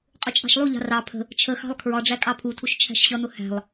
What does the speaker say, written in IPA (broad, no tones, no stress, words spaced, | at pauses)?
qʼʊt͡ʃʼɑ̤ʃlˠuʎɑ̤ rɑ pʰə̤ | t͡ʃʰəxɑ̤lˠ kʰɹɒɖ͡ʐæ kʼɑpʰutʰuʃ t͡ʃʰæ̤ʃɕʌn̪ʊ hæ̤lˠ